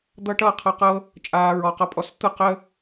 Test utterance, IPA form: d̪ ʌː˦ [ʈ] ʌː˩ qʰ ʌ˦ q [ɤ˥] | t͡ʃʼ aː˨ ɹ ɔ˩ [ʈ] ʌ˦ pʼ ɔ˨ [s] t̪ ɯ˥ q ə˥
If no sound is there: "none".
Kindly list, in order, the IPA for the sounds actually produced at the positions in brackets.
ʈ, ɤ˥, q, s

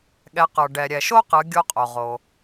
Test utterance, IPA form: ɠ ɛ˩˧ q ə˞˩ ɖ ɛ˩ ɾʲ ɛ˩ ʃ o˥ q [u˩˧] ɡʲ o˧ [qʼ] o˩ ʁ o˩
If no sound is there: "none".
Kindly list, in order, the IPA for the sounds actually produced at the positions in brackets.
ɯ˩˧, qʼ

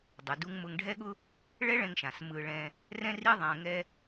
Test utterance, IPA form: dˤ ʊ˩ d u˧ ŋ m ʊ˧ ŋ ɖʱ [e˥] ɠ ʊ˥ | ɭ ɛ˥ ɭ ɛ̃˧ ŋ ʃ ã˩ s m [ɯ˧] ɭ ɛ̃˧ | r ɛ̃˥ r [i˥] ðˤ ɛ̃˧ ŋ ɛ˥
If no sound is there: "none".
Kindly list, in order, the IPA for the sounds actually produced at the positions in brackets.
ɛ˥, ɯ˧, i˥

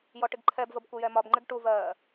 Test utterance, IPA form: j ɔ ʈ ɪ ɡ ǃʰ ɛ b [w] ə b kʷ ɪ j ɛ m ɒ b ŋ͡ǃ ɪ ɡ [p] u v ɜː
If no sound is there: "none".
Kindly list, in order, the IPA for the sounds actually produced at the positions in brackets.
v, ʈ

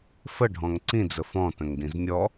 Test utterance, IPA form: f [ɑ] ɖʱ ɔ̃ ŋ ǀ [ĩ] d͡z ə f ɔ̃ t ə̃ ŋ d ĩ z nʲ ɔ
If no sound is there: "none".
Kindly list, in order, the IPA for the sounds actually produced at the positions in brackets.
ə, ĩ

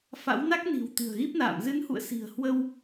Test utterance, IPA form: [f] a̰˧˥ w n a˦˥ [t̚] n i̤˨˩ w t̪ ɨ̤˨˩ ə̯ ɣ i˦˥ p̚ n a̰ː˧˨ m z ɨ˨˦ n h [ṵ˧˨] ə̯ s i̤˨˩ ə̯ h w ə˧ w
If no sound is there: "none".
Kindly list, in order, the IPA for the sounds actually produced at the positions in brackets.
f, k̚, ṵ˧˨

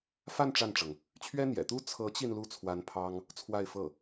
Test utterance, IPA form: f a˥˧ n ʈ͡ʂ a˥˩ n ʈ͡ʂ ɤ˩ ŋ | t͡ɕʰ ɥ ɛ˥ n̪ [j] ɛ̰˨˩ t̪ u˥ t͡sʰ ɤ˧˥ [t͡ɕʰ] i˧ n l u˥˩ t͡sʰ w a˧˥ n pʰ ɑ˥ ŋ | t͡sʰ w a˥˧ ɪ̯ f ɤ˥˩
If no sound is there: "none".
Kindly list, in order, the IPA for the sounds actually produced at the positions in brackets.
j, t͡ɕ

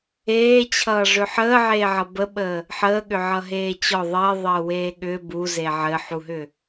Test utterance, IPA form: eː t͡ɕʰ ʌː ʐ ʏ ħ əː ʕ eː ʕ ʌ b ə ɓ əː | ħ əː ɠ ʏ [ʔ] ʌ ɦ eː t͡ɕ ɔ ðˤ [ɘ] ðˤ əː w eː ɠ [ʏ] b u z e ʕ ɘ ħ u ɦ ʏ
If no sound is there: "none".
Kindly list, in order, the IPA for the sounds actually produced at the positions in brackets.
ʕ, ɘː, ʏ

